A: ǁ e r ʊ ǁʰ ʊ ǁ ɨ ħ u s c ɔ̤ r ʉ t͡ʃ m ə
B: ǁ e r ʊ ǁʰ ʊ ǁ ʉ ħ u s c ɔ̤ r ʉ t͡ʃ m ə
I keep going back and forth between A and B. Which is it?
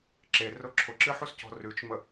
A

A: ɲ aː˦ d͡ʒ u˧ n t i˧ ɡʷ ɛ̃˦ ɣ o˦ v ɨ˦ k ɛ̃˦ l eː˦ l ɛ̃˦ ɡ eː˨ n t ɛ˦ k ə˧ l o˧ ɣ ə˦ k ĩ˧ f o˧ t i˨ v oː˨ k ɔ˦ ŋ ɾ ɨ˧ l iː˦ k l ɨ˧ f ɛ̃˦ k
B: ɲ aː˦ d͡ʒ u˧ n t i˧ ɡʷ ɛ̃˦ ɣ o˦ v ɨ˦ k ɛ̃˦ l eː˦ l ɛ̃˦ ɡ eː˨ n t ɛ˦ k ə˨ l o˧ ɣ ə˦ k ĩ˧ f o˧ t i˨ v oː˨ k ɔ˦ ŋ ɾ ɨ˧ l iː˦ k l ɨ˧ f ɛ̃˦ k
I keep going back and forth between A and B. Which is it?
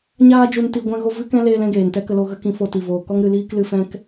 A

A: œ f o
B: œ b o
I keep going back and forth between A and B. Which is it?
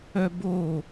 B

